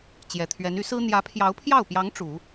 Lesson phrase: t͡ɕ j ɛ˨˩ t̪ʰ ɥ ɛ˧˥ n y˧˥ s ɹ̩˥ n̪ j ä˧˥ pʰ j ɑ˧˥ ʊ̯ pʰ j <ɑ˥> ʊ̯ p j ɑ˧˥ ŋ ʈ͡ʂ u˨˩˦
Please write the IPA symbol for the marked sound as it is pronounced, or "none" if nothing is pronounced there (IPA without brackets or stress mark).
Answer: ɑ˥˩